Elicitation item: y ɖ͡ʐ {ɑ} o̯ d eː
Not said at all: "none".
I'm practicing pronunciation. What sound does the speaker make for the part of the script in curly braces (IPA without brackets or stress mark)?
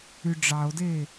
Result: ɑ